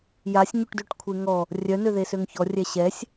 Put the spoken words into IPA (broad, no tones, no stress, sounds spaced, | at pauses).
j a sʲ ɲ u ʈ d ø ʈ kʷʰ e ŋ ɔ | rʲ œ n ø ð e s ø ŋ ç ɔ rʲ ɛ ɕ ɛ sʲ